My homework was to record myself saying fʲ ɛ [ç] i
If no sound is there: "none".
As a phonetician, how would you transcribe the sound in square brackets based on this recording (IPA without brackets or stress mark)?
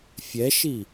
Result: ʃ